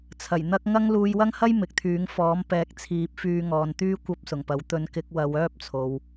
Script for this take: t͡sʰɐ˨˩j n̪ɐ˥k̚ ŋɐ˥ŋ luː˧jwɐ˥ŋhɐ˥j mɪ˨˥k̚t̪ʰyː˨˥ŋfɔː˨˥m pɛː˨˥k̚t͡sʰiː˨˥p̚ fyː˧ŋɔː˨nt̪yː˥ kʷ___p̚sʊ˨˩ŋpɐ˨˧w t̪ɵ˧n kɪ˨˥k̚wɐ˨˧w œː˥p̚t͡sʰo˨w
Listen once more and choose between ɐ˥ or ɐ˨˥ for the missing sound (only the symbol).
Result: ɐ˥